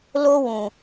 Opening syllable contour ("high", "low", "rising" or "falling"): high